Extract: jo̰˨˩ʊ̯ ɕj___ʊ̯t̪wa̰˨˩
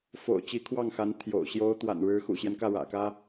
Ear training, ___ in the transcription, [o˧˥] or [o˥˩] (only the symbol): o˧˥